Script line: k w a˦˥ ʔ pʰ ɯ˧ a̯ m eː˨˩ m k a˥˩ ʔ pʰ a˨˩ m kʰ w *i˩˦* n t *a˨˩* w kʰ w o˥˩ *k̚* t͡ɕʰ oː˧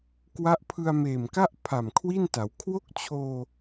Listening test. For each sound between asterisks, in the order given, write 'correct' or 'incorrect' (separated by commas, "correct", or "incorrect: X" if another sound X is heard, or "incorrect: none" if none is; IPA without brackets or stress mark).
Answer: incorrect: i˥˩, incorrect: a˩˦, correct